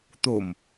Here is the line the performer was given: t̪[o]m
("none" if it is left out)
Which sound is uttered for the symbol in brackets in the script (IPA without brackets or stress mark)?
o